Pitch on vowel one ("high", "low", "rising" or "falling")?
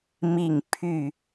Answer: falling